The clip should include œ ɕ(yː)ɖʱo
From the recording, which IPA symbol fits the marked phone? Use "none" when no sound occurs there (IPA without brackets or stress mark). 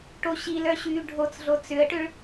yː